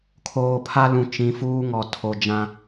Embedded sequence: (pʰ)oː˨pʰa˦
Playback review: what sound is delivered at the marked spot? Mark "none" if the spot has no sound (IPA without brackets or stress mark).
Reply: kʰ